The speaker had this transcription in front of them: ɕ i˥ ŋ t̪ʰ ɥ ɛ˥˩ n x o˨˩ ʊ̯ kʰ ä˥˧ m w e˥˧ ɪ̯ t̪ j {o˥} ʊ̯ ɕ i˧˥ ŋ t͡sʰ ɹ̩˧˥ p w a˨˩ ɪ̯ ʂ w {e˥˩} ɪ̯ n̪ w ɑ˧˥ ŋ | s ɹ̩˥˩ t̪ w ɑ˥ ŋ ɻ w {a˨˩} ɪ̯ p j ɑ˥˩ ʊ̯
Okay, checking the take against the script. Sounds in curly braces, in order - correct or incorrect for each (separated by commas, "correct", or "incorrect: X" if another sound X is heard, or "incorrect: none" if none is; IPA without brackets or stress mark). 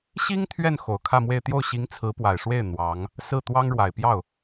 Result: incorrect: o˥˩, correct, correct